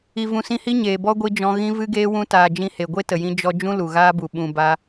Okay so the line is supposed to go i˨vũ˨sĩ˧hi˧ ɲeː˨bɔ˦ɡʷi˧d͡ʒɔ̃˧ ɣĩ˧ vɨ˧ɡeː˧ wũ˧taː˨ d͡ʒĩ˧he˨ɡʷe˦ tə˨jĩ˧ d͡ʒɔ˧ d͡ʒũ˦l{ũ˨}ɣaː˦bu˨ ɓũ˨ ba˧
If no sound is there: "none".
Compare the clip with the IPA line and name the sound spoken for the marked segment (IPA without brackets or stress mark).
u˨